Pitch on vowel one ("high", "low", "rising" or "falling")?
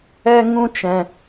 high